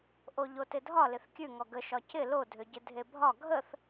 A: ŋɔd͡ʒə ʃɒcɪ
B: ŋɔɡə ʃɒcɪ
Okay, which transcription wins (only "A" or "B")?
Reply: B